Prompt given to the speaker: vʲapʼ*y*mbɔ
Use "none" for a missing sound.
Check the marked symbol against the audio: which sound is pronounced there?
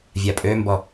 ø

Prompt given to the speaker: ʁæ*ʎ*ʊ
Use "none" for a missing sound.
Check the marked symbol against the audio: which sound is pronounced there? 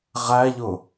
ʎ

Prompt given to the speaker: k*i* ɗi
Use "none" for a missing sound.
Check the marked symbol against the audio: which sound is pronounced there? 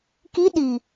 i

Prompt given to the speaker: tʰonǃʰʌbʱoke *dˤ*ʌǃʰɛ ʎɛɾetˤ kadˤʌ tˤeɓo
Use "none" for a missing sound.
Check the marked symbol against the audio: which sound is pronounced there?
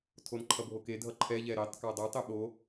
dʱ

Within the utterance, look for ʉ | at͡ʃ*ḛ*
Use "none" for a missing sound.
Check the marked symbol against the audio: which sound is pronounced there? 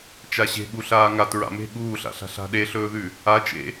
ḛ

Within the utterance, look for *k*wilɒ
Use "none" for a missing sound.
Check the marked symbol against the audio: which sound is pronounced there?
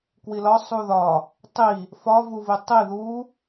k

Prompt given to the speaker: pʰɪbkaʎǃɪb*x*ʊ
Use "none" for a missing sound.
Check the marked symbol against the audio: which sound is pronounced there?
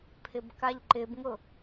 ŋ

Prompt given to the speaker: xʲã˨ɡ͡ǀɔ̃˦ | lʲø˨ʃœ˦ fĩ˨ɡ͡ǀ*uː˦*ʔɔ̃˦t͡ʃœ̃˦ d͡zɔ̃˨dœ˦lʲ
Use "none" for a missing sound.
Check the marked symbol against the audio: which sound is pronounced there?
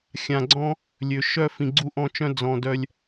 u˦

